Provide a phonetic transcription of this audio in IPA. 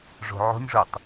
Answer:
ʐ o̤ ʕ o̤ nʲ ʐ o tˤ

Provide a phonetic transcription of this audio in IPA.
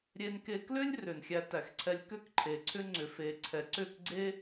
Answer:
ɾʲ e˧ n k e˧ k l ʏ˦ lʲ r ʏ˨ n xʲ æ˧ t æ˨ x ǀʰ ɛ˧ lʲ k ʏ˦ k ǃʰ e˨ ǀʰ ʏ˦ ŋ͡ǀ ʏ˨ f e˨ ǀʰ ɛ˨ ǀ ʏ˦˨ k ɡ͡ǀ e˦

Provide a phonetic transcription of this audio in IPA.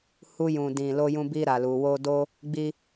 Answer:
h u˧ j ũ˨ d ĩ˨ l o˧ j ũ˧ b i˦ ɾ a˧ l u˧ w o˦ d o˦ | ɡ͡b i˦

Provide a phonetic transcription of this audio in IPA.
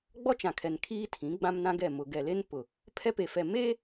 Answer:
ɡ͡b ɔ˦ t͡ʃ ã˨ kʰ ɛ˨ n kʰ iː˦ tʰ ĩ˨˦ ɡ͡b ã˦ m n ã˦ ɡ ɛ˦˨ m ʊ˨ ɡ ɛ˨ l e˦ n p ʊ˨ | pʰ ɛ˦ p e˨ f ɛ˨ m eː˦

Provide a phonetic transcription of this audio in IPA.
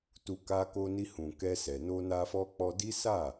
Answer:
t u˧ k a˧ k o˧ n i˧ h ũ˨ k ɛ˧ s ɛ˨ n o˧ n a˧ f ɔ˧ k͡p ɔ˧ d i˦ s a˦˨

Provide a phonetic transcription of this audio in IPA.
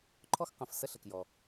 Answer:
ǃʰ ɔ˥ x q ə̃˩˧˩ f s ə˥˧ ɬ ə˩ k j ɔ˩

